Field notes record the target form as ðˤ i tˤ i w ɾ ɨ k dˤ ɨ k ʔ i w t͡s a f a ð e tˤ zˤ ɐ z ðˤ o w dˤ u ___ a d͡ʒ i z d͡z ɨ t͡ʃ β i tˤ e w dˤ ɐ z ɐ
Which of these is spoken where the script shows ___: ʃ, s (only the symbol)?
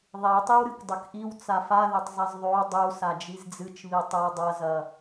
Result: s